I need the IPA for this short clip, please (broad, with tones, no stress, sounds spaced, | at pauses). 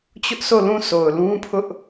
t͡ɕ ʊ˦ ʔ s o˦˨ l ũ˦˨ s o˨ ʊ̯ l ũ˦ pʰ ʊ˦ ʔ